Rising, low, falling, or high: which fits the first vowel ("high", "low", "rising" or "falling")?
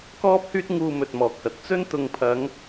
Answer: high